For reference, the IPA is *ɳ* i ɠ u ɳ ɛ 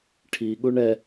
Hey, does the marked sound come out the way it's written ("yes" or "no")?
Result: no